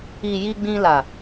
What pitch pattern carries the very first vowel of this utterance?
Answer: low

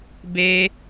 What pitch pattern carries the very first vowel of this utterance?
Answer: high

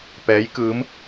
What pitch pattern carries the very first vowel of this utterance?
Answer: rising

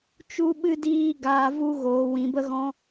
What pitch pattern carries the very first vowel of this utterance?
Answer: high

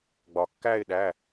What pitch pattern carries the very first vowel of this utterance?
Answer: low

